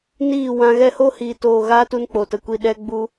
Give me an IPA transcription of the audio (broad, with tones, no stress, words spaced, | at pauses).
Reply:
niː˦˨wã˧ ɣɛ˧ho˦hiː˨toː˨ ɣaː˦tu˧nk͡po˨tə˨ kʷi˨ ɗɛ˧ ɡ͡bu˧